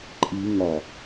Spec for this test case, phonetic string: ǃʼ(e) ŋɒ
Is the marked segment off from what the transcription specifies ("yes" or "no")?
yes